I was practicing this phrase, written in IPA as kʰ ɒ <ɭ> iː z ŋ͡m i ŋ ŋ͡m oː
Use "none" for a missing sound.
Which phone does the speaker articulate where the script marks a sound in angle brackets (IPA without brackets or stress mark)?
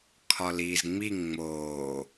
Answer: l